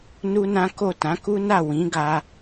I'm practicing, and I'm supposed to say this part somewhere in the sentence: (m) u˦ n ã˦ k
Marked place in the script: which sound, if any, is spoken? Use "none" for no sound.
n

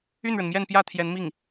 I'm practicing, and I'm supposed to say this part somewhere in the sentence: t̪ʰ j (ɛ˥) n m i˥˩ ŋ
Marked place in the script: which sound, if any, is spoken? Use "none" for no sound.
ɛ˧˥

